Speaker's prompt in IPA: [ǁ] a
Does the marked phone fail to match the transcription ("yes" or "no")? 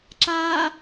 no